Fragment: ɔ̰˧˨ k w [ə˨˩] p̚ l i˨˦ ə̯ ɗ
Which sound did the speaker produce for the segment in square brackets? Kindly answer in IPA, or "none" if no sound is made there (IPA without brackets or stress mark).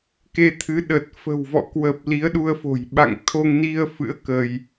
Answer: ə˨˩